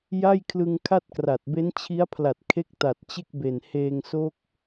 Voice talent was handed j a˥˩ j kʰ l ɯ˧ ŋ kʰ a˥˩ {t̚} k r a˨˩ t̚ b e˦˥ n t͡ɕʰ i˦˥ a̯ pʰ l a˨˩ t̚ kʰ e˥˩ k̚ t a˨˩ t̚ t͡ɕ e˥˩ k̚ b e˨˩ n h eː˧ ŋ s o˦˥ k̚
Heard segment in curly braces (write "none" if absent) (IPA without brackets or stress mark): t̚